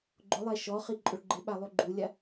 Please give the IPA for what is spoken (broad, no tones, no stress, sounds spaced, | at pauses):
ɡ͡ǃ ʊ lˠ ɛ ʃ ɔ χ i ǃʼ ʊ ɭ ɡ͡ǃ ɪ ɓ a lˠ u ɡ͡ǃ u lʲ a